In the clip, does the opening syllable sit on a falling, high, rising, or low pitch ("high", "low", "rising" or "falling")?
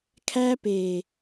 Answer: high